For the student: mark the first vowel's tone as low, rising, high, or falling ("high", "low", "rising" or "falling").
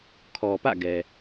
low